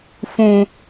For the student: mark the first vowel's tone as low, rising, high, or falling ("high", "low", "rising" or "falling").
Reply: low